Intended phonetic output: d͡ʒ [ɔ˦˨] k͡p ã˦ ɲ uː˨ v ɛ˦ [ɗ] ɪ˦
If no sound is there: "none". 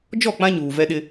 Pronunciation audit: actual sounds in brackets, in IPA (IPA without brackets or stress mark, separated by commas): ɔ˦˨, ɗ